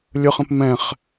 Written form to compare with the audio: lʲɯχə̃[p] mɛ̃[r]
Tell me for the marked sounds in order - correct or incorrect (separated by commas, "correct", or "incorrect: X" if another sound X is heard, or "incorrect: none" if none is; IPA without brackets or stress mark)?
correct, incorrect: χ